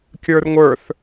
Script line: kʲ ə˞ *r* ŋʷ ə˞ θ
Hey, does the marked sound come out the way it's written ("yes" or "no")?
yes